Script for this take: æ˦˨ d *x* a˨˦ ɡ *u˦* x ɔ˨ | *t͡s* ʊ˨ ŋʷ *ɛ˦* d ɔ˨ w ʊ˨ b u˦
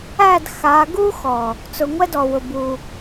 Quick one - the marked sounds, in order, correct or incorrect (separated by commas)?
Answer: correct, correct, correct, correct